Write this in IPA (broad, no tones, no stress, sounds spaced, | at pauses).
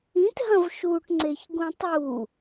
ĩ t ɦ ɐ̃ v ʃ u ʈ ŋ͡ǀ e ç ɡ ũ tˤ u